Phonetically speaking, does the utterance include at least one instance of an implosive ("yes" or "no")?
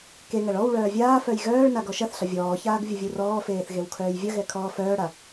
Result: no